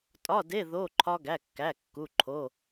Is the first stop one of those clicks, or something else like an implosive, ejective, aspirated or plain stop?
ejective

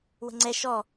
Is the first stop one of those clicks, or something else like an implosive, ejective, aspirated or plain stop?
click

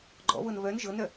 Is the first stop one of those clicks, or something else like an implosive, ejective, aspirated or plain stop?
click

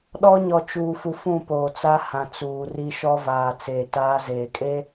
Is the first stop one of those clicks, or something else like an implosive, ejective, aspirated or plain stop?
implosive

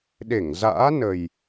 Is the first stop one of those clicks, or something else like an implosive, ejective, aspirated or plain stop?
implosive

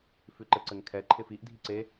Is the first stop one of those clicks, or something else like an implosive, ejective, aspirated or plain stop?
click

